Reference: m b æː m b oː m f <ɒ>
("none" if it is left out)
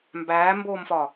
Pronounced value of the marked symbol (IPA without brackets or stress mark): ɒ